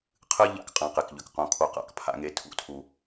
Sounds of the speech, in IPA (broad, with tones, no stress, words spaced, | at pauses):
qʰɨ˦ ʎa̰˦k qʼã˦ qe˨kʎʏ˨kqõ˦˨ kʰo˦qa̰˦k pʰa̰˦ŋe˦tʰṵ˦ tʰu˨